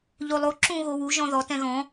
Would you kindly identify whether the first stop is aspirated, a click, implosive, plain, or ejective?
click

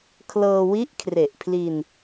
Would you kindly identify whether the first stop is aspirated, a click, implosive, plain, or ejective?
aspirated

